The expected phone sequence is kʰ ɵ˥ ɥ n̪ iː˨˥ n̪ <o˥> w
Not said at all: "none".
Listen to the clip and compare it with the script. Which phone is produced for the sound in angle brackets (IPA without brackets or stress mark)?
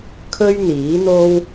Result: o˥